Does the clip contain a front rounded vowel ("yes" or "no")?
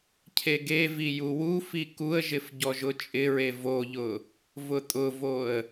no